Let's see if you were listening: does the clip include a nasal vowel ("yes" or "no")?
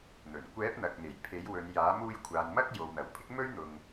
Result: no